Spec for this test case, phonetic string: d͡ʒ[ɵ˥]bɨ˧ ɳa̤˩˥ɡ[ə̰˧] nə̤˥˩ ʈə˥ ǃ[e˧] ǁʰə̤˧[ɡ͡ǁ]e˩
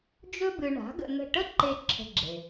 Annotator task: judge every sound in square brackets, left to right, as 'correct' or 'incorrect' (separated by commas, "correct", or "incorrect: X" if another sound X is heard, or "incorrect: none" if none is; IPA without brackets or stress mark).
correct, correct, incorrect: e˥, correct